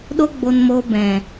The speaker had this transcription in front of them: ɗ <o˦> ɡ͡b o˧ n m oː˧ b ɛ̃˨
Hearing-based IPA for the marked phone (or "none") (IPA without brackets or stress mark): o˦